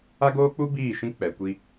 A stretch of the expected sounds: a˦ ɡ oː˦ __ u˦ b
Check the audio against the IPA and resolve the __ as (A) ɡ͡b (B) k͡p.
B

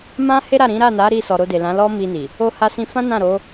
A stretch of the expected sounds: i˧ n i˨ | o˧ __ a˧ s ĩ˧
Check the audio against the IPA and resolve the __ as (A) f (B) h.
B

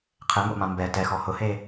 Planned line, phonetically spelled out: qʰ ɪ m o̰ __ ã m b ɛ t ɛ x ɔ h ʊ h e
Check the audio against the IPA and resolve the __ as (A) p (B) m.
B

